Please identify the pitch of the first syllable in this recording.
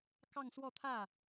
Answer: falling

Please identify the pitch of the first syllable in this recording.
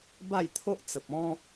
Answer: falling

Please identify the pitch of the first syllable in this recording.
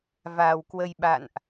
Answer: low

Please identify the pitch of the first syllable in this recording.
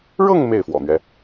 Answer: falling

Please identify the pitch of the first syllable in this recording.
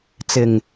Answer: low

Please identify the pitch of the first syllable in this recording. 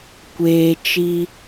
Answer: low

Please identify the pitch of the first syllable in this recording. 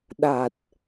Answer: low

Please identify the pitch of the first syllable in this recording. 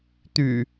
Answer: low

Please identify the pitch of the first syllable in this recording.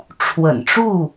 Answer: low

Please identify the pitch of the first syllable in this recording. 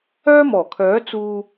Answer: high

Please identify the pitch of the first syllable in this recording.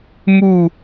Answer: falling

